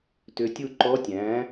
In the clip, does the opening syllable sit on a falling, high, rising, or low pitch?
low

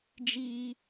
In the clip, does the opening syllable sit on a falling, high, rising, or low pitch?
high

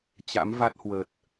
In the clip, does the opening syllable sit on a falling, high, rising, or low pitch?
rising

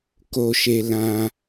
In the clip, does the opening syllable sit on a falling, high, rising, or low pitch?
low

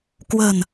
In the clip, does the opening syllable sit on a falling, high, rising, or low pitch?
low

